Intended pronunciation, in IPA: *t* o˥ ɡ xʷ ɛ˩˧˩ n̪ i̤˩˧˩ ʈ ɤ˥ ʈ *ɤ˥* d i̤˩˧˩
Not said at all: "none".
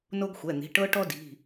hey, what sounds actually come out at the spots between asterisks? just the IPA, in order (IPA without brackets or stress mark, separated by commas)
n, ɔ˥